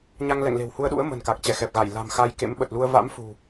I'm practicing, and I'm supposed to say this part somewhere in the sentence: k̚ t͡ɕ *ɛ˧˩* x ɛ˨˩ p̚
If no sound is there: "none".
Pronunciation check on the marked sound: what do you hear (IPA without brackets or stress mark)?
ɛ˧˩